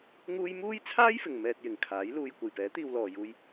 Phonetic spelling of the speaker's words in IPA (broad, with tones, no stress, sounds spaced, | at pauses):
ŋ uː˥ j m uː˥ j t͡sʰ aː˥ j f ɪ˨ ŋ m ɛː˧ t̚ j ɪ˨ ŋ kʰ aː˨˥ j l uː˧ j kʷ ɐ˨ j p ɛː˨˥ t̪ iː˧ w l ɔː˨ j uː˧ j